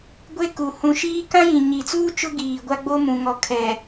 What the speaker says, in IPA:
ɡʷeː˦ku˨ hũ˨ ʃiː˦ kã˦jĩ˨ ɲi˨t͡suː˦ t͡ʃʊ˦ɡiː˨ɡʷa˦ɡ͡bo˦ mũ˨ ŋɔ˨kʰɛ˨

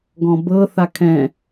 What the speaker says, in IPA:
ɡɔ̃bɤ θakʰɛ̃

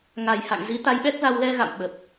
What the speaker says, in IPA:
ŋa˨˩jha̰˧˨ŋzi˨˦ t̪a˨˦jɓɛ˦˥k̚za˧w lɛ˧ ɣa̰˧˨mɓə˨˩p̚

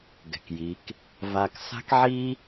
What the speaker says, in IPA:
ɡɛ̤˨kji˨˦k | va˧k sa̤˦kʕi˦

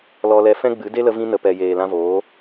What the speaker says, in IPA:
lɔ˧lɛ˧ fɛ̃˦ɡ͡bɨ˨˦ de˦lə˧vĩ˧nə˨ pɛ˨jeː˨ lã˧voː˨˦

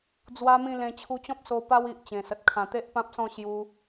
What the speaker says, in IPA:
d͡zwa˦mĩ˥˧lẽ˧ t͡ɕʰu˧t͡ɕɔ̃˦p̚ so˧ pa˦wi˨ʔt͡ɕẽ˨˩sə˨t̚ kʰã˨˩t̪e˦ʔpã˦p̚sɔ̃˥˧ ɕju˧

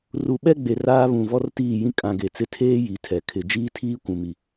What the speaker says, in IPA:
ru˨ɓɛ˦ɡ͡be˨ raː˦βũ˨ vɔ˦rtiː˦˨jĩ˦ kʼã˨ ɡe˨t͡sɪ˦ tʰeː˦ ji˨˦tʰɛ˨kʰɪ˨ d͡ʒiː˦tʰiː˦ kʷũ˨mi˨

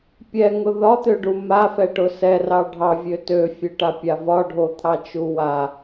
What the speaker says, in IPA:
pʲɛŋʊ ðɒt̪øɖu mafɛʈʊ sɛrɑ ɖʱɑvʲø tøfʲøʈapʲa vɒɖʱot̪ʰɑt͡ʃu wa

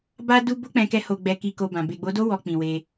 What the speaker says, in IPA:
ba˧ du˧ bo˦k͡pɛ̃˧kɛ˧ ho˨ɡ͡bɛ˨ki˨ko˨ bã˨ be˨ɡ͡bo˨˦do˦ wɔ˧k͡pĩ˨ we˧

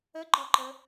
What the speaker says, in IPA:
əɡ͡ǃɒǃə

